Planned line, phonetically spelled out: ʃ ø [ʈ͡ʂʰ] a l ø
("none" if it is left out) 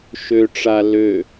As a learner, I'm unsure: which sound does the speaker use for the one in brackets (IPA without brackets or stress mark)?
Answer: ʈ͡ʂ